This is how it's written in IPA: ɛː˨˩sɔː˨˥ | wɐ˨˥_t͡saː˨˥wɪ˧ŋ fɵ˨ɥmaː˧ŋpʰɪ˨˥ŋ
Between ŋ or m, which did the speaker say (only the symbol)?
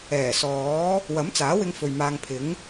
m